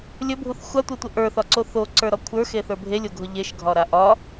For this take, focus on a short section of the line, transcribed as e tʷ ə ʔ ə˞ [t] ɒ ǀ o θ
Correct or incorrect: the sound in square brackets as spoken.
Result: incorrect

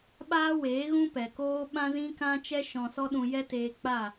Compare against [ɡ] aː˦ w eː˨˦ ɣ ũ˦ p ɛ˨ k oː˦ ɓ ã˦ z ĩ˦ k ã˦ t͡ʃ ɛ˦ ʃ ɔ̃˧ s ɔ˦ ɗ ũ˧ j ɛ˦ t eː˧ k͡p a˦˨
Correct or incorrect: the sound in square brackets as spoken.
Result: incorrect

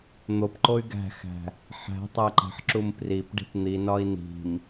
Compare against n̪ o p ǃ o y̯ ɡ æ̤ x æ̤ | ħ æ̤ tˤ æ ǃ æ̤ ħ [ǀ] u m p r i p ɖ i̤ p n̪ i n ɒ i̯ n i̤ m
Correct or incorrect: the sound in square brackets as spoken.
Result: incorrect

